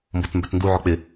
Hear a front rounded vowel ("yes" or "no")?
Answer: yes